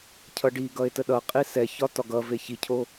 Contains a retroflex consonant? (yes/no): yes